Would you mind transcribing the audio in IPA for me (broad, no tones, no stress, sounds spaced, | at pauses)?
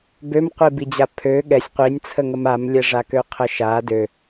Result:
b ø m qʷ i b i d͡ʑ a pʰ ø ɠ ɛ sʲ qʷ i nʲ t͡sʰ ə ŋ ə m a m lʲ ɛ ʐ a k ø qʰ ə ʃ a d ø